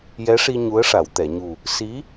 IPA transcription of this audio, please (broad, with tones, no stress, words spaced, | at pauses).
jɛ˧˥ʂi˧ ɲu˧˥ə̯ʂa˨˩˨wt̪ɛ˨˩˨ɲu˨˩ | si˧˥